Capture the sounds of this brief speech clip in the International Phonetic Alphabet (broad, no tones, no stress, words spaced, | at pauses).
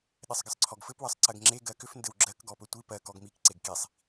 ɗɘsˤɡəsˤǀʰɔɡfɘp wɜsˤǀɜɡŋ͡ǁe ɡɜkʏf ndɘwɡ͡ǁɜk ɡɔpɵtʷi pɜ kɔɡmik ǀeɡkisˤ